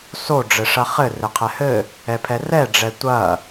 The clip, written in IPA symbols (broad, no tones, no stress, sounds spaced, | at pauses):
s o ɖ͡ʐ ɘ ʂ ɐ χ ɘ r ɘ qʰ ɛ h ɘ | ɛ pʰ ɛ r ɛ ɖ͡ʐ ɛ tʷ ɐ